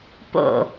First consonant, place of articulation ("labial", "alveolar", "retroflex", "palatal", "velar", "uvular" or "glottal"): labial